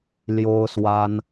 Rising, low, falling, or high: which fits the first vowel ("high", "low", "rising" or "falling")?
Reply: high